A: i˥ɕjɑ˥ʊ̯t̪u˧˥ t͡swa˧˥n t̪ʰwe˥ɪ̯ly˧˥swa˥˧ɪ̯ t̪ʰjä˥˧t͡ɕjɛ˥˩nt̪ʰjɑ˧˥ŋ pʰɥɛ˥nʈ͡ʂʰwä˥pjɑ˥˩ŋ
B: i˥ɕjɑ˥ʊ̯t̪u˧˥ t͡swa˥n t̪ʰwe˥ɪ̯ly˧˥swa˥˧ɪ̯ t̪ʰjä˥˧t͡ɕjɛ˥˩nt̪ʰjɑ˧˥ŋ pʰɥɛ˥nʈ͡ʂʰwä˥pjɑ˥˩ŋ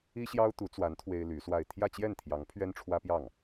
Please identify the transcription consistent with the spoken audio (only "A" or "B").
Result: A